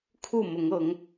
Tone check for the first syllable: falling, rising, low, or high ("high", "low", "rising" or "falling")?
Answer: falling